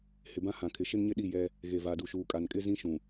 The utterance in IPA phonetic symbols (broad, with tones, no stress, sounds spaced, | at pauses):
h ɪ˨ b ã˦ h ã˨ kʰ ɪ˨ ʃ ɪ˦ n ɲ ɪ˦ ɗ i˦˨ j ɛ˦ | ɣ e˨ v a˨ d u˨ ʃ uː˨ kʼ a˨ n kʼ ɪ˦ z ĩ˦ ʃ ũ˨